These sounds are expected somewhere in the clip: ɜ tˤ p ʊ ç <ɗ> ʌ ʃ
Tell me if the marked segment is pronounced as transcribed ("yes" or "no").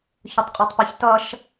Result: no